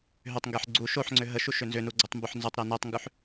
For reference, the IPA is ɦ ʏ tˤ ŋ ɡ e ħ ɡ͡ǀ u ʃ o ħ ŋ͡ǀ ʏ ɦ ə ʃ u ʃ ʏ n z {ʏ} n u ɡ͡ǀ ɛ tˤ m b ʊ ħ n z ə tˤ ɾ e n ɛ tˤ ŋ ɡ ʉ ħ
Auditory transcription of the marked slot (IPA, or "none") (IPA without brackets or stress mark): ʏ